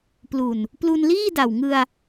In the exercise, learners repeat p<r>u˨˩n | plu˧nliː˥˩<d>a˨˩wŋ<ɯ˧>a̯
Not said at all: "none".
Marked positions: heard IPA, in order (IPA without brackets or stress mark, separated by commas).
l, d, ɯ˧